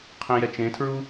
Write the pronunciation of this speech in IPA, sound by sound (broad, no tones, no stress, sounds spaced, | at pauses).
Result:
qʰ ĩ j ɛ t͡ʃ ẽ tʰ ɹ u